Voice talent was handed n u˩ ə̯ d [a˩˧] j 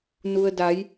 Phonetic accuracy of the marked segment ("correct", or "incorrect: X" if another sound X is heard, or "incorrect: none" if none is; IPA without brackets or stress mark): correct